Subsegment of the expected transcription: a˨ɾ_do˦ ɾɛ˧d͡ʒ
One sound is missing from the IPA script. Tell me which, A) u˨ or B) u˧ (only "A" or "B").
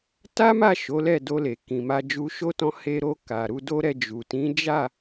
B